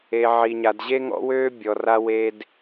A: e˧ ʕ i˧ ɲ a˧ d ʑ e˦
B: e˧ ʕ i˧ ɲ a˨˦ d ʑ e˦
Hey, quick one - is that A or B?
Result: A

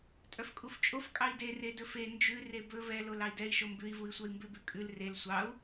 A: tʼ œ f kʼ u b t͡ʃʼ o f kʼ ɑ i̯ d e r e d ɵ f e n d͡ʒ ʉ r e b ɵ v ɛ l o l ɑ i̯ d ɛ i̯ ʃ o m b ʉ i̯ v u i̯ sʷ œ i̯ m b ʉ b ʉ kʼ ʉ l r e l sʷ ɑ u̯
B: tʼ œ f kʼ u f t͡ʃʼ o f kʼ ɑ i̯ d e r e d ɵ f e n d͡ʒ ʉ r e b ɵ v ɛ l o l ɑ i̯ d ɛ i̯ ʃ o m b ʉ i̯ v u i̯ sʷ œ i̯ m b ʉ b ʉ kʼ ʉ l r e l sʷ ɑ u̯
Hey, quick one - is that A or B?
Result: B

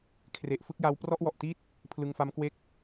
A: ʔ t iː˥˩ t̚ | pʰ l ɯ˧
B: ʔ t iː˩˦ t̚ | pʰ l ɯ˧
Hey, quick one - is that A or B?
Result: A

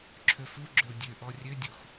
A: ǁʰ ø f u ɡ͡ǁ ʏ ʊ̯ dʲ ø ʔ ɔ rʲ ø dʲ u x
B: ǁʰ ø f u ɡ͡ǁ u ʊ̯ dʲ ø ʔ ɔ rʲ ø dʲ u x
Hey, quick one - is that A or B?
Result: A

